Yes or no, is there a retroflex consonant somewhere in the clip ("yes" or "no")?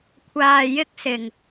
no